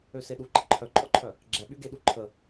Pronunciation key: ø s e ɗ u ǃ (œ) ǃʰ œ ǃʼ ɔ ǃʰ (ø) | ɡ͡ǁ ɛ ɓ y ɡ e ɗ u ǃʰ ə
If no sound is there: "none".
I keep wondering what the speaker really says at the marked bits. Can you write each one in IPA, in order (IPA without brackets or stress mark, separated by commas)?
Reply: ə, œ